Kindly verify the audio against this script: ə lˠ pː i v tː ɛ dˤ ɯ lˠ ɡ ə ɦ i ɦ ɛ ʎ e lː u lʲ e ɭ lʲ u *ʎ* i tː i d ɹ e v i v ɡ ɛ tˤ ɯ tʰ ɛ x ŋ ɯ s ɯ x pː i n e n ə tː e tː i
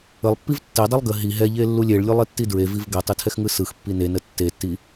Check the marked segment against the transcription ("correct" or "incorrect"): incorrect